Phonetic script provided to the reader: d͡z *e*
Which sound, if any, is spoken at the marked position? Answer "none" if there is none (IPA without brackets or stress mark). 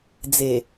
e